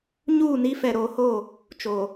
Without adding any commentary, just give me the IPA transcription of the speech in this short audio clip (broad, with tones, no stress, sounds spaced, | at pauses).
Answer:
ɲ uː˦˨ n i˦ f ɛ˨ ɾ oː˨ h o˦˨ | t͡ʃ o˨